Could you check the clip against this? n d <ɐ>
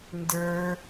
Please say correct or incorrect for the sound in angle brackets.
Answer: incorrect